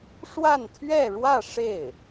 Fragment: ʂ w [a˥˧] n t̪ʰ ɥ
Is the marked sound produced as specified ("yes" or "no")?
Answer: yes